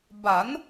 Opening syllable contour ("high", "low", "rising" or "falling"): rising